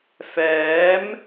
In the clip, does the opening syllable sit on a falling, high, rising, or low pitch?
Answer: rising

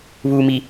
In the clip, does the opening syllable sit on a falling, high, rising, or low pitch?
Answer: low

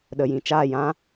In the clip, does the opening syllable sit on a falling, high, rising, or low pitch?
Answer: low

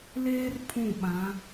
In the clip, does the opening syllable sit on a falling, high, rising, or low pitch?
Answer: high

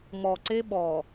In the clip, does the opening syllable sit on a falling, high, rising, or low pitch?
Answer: low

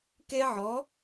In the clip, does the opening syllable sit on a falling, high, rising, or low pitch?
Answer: high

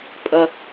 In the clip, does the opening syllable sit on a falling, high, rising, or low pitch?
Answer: high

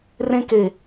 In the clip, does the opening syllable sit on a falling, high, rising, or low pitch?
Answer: high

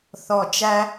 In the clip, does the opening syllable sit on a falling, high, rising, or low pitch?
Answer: low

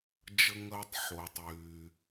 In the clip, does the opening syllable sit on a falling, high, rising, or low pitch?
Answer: low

